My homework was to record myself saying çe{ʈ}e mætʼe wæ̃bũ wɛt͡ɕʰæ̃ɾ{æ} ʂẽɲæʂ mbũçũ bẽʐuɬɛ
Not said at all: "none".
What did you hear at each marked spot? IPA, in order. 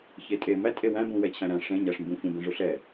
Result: tʼ, æ̃

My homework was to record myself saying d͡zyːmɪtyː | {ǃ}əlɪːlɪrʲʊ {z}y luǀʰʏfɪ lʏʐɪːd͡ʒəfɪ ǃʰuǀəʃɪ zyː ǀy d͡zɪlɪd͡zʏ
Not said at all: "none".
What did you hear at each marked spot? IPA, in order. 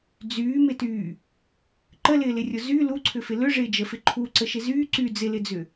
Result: ǃ, z

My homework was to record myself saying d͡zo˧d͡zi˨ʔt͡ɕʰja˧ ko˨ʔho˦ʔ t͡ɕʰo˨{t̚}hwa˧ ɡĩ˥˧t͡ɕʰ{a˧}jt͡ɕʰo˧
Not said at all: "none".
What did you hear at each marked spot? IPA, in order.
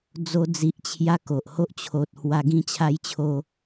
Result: t̚, a˦

